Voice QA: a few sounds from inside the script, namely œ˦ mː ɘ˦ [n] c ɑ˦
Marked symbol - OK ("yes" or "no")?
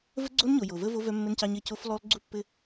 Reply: yes